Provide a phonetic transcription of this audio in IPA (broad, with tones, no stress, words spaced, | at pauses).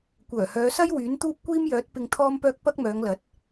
kʷœː˨˩hœː˨˧sɐ˥j wyː˨˥nt̪uː˥p̚kʷiː˥mjœː˨˥t̚ pɪ˧ŋt̪ʰɔː˥mpœː˥k̚ pɐ˥k̚mœː˨˧ŋlɐ˨˥t̚